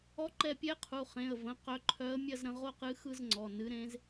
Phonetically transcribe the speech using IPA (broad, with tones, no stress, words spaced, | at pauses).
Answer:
ɔ˧˥ǃɛ˧pʲɛ˧˥ qʰu˩˧˩χẽ˩˧˩ə̯və̃˩˧˩ qœ˧˥ǃʰœ˧˥ə̯ mʲɐ˥˧zɾə̃˧ʁo˥˧qɨ˧˥ xɯ˥˧zŋ͡ǀɔ˩˧˩ nɨ˧˥ɾẽ˧˥z